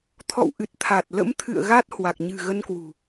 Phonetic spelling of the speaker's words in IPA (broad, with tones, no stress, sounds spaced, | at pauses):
t̪ʰ ɔ̰˧˨ w ʔ ɨ˨˩ t̚ t̪ʰ a˨˩ t̚ l ə̰˧˥ m t̪ʰ ɨ̰˧˨ ə̯ ɣ a˦˥ t̚ h w a˨˩ k̚ ɲ ɨ̤˨˩ ɣ ə˧ n k w ṳ˨˩